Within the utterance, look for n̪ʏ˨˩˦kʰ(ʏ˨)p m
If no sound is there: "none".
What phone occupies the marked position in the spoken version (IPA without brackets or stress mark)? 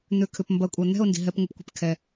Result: ʏ˨